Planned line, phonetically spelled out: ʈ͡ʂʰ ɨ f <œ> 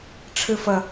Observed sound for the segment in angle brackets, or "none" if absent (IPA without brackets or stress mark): ə